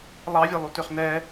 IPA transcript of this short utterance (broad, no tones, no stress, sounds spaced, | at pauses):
lˠ ɑ vʲ ɛ lˠ u t ø χ n ɛ